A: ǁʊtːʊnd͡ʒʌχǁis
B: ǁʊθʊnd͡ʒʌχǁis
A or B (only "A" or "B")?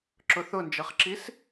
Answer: B